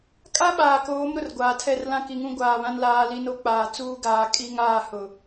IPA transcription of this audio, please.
kʼa˦ɓaː˨koː˨˦m ɾʊ˨rɡʷaː˨tʰɛ˦˨r lã˦ki˨ŋũ˦ ɡʷaː˨βã˦n laː˦li˦ no˦k͡paː˨ t͡suː˦ɡaː˨ kʼi˦ŋaː˦˨ hʊ˨

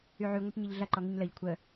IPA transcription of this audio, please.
yʕy ŋʷɛʈɲiʎɮɐ ǃɔŋiɲləʎ kʷʰə

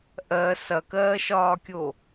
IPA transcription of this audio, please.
ʔɜ sɐkɜːʃɒːkʲo

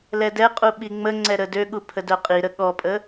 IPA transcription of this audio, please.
lɛdɛqʼu ɓiŋ͡məŋ͡ǀɛ ɾədøɠu pʰədœqʼiɾə ɠɔpʼə

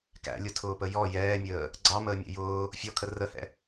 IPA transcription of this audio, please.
kæ̰lʲʊtʰʊːpə jɔ jɛːmʲəː | ɡ͡ǀɑməːmʲɛ̰ jʊː | fʲɔkʰə rəhɛ̰

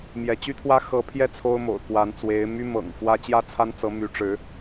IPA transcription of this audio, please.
mjɛ˧˥t͡ɕy˥t̪ʰwä˥ xɤ˧˥pʰjɛ˥˩ t͡sʰo˥ʊ̯mo̰˨˩ʊ̯ kwa˧˥nt͡swe˧˥ɪ̯my˥ mɤ̰˨˩ŋfwä˥ t͡ɕjä˥t͡sʰa˥nt͡sɤ˧˥ my˧˥ʈ͡ʂɻ̩˧˥

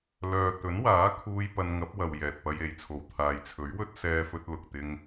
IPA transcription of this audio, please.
lœː˨ t̪ɵ˨˥nwaː˨˥kʰuː˧j pɐ˧nŋɐ˨˥p̚wɐ˨w jɛː˨t̚pɐ˧je˨jt͡sʰo˨w t̪ʰaː˨jt͡sʰɵ˨˥ɥwɵ˥t̚ sɛː˧fɵ˧t̚lʊ˨k̚ t̪ɪ˧ŋ

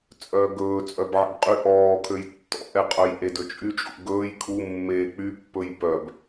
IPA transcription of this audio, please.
t͡sʼœːɡɵː t͡sʼœbʕḛbqʼy ʔɔːkʰøj tːɔ̰ʔɛqʼœj ʔedɵt͡ʃʼyt͡ʃʼṵ ɡɵːj kʰu mːeːk͡pypːɵj pœb

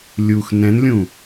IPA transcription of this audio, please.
lʲux nɛ̃nlʲũ

